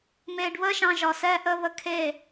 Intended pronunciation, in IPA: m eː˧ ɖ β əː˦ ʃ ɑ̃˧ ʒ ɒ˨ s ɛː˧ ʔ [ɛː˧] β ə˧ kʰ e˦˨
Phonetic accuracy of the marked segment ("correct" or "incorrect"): incorrect